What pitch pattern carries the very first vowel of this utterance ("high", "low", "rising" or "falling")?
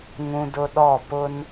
high